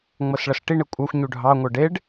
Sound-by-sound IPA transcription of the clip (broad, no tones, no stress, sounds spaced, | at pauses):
ŋ͡m ɤ s ɭ ʌ s ʈ i ɳ e kʷʼ ɑ xʷ ɲ u ɖʱ ɑ ŋʷ ɤ ɖ e ɖ